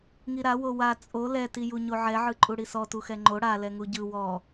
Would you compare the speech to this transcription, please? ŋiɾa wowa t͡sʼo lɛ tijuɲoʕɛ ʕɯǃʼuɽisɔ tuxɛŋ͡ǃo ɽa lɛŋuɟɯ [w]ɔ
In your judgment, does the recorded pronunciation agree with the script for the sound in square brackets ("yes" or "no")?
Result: yes